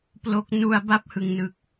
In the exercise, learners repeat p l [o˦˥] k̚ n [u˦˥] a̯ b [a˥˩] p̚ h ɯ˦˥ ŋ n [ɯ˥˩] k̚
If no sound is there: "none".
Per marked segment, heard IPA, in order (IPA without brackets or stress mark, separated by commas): o˦˥, u˧, a˥˩, ɯ˥˩